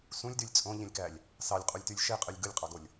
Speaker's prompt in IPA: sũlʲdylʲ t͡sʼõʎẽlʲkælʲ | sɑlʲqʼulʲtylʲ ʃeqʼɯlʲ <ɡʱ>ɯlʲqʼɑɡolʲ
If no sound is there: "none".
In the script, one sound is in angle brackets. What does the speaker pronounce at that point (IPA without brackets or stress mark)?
ɡ